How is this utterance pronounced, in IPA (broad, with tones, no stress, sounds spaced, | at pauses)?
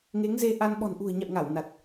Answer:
ŋ e˨˦ ŋ z e˧ ʔ a˧ n ɓ ɔ̤˨˩ n ʔ ṳ˨˩ ə̯ ɲ a̰˧˨ w ŋ a˧˩ w n a˨˩ t̚